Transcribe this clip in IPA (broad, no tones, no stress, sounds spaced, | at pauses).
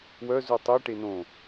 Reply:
w œ z u tˤ e ʈ e n õ